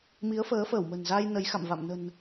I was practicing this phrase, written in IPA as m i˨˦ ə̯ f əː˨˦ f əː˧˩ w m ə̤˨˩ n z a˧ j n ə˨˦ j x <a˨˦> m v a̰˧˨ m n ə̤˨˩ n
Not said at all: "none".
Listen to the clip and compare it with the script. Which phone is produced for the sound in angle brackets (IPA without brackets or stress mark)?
a̰˧˨